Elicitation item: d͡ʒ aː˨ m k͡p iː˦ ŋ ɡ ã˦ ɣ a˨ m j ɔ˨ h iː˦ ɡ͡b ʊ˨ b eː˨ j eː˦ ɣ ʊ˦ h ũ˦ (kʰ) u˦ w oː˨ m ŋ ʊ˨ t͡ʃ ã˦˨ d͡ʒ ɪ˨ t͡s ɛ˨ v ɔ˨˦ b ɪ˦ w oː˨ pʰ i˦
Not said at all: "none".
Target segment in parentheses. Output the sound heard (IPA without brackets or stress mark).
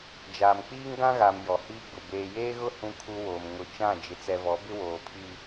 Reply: kʰ